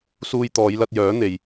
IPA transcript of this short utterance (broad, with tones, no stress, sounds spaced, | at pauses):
s uː˧ j t̪ ɔː˨˧ j l ɐ˧ t̚ j œː˨˥ n̪ e˧ j